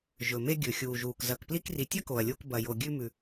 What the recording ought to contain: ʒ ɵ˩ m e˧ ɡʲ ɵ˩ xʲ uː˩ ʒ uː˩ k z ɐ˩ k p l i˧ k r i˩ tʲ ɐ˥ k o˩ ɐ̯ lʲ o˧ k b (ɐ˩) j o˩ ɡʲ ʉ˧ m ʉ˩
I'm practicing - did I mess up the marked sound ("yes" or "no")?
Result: no